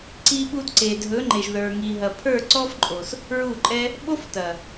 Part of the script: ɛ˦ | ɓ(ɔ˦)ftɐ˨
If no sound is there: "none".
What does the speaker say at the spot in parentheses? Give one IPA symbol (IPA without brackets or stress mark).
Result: o˦